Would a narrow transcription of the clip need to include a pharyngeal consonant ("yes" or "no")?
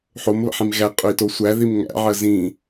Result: yes